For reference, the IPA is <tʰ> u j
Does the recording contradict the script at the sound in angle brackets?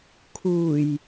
yes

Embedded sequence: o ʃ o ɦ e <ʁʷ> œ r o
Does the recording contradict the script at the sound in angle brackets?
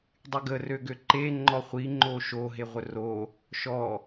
no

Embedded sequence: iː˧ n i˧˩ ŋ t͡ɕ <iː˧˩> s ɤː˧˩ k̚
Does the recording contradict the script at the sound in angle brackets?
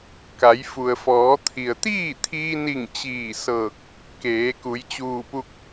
no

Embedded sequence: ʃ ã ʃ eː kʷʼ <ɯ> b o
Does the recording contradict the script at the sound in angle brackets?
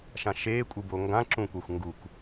no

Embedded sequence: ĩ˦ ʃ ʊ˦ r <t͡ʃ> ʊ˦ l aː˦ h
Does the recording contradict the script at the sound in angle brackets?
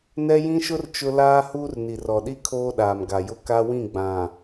no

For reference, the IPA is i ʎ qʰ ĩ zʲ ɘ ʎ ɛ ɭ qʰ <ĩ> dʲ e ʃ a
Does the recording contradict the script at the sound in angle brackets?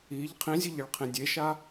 no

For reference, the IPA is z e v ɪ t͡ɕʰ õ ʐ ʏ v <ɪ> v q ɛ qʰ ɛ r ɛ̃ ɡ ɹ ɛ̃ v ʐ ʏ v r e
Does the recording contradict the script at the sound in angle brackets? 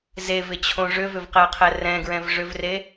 yes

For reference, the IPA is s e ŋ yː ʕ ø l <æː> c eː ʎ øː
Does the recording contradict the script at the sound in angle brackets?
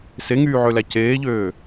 yes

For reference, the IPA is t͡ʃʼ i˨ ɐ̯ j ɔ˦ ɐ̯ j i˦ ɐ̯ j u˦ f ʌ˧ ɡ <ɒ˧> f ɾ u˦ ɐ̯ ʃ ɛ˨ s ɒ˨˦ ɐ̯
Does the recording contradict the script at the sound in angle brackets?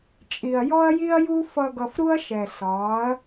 yes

